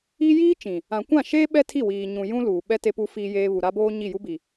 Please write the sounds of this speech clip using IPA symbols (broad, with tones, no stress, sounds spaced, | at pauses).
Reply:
i˦ j iː˦ t͡ʃ ĩ˨ | ã˨ kʷ ã˦˨ ʃ eː˦ ɓ ɛ˦ tʰ i˦˨ w iː˨ ɲ ũ˨ j ũ˦ l uː˨ ɓ ɛ˦ t e˦ p u˦ f iː˦ j eː˦ β u˨ ɾ a˦ b oː˦ ɲ i˦˨ j u˦ b i˨